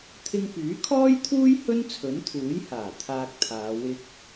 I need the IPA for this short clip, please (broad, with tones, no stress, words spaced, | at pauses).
t̪ʰɪ˧ŋpyː˨˥kʰɔː˥jt̪ʰuː˥j hɵ˥nt͡sʰɵ˨˥nt̪ʰuː˨˥jhaː˨˩ t̪ʰaː˧k̚t̪ʰaː˨˧ wɪ˧k̚